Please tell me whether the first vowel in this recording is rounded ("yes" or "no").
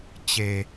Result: no